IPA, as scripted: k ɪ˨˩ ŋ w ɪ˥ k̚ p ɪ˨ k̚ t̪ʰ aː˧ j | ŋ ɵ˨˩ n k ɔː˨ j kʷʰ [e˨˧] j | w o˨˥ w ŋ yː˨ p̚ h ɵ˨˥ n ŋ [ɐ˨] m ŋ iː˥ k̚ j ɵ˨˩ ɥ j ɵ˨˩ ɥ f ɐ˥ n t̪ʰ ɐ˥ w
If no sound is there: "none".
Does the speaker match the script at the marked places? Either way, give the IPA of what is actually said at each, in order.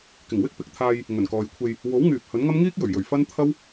e˧, ɐ˥

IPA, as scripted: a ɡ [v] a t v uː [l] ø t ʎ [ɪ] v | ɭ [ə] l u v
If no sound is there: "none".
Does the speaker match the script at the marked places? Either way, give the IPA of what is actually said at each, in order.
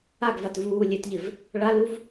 v, lʲ, ɪ, a

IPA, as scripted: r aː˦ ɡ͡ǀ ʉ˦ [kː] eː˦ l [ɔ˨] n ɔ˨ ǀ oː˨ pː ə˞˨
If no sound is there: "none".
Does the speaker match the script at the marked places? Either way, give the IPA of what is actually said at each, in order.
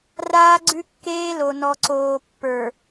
kː, o˨

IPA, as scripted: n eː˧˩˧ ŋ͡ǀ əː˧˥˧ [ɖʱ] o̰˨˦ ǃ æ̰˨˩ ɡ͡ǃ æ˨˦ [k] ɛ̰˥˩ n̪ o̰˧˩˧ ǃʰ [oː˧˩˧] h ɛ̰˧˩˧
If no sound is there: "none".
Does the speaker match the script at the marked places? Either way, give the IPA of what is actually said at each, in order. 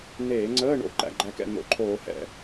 ɳ, k, oː˧˩˧

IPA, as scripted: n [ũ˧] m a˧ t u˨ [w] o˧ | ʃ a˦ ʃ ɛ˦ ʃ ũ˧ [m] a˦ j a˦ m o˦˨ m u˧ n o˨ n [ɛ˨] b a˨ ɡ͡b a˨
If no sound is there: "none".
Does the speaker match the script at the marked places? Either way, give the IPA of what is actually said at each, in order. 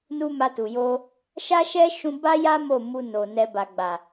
u˧, j, b, ɛ˨

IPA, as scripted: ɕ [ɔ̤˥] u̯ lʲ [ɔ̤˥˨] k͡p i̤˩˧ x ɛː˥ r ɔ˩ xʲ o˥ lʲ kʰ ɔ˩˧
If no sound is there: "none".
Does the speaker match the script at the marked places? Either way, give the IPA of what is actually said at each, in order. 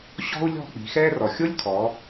ɔ̤˥, ɔ̤˥˨

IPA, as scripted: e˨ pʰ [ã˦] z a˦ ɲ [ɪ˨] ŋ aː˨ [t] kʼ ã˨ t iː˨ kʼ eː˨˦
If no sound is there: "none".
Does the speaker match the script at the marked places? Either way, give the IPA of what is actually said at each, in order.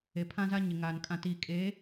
ã˦, ɪ˨, n

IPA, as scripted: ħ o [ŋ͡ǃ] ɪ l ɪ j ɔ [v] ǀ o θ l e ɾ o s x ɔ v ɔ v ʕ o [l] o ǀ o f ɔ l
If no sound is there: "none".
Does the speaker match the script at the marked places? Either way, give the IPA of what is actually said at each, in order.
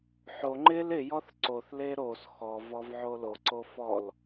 ŋ͡ǃ, θ, l

